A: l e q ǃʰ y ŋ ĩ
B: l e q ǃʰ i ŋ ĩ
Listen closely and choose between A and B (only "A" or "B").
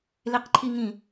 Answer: B